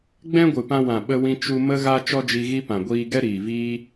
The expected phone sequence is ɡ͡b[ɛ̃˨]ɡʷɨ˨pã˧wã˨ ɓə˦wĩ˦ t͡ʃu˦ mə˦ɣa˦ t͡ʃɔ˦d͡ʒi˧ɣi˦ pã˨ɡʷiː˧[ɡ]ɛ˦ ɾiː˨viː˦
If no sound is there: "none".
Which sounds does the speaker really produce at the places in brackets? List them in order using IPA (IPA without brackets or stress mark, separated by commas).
ɛ̃˦, ɡ